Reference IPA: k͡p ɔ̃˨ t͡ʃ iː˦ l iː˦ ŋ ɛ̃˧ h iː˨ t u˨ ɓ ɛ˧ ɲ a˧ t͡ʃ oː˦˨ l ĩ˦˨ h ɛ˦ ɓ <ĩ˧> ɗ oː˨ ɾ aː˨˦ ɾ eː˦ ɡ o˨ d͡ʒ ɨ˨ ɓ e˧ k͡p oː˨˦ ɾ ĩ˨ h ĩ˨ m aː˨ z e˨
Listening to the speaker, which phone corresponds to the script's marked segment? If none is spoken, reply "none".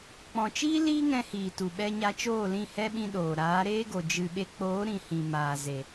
ĩ˧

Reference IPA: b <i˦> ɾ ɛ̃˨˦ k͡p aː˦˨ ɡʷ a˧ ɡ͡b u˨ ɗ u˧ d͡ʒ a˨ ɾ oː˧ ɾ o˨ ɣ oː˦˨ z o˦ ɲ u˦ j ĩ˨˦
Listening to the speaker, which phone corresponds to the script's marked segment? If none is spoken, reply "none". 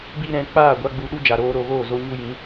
i˦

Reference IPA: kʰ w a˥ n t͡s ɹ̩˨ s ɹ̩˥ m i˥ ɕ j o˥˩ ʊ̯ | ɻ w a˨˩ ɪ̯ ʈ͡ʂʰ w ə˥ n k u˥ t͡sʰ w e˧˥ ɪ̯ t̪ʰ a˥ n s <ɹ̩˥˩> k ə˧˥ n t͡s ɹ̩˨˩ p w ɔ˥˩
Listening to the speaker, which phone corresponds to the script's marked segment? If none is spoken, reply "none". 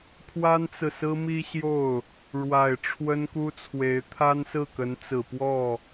ɹ̩˥˩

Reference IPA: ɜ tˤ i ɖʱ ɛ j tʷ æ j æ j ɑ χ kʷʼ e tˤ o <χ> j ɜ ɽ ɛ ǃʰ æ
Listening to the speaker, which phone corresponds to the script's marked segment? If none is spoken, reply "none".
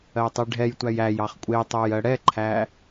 none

